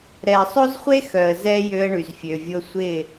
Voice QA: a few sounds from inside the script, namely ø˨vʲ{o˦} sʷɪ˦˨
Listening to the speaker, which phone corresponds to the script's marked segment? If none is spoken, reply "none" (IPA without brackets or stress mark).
o˦